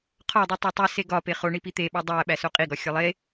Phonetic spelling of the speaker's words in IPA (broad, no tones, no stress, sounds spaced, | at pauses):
qʰ ɒ dˤ u tˤ æ tˤ u s e ɡ ɒ p e χ o ɳ i p i t̪ e ɓ ɒ dˤ æ ɓ æ s o qʼ i ɡ ɒ xʲ ɒ lˠ e